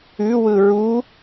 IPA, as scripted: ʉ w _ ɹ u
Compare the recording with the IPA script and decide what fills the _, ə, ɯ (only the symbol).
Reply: ɯ